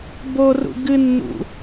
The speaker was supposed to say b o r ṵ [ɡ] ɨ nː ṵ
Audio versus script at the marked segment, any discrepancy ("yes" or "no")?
no